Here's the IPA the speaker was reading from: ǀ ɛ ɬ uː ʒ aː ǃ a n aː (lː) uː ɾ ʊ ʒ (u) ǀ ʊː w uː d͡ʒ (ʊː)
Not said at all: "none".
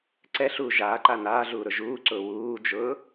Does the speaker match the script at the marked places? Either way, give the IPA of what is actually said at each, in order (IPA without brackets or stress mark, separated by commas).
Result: ɮ, uː, ʊː